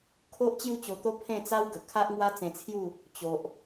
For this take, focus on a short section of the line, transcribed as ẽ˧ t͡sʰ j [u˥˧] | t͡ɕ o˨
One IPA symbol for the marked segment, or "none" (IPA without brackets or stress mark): u˥˧